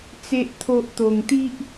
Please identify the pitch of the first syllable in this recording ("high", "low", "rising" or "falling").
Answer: high